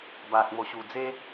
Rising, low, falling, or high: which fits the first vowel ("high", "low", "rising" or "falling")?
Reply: low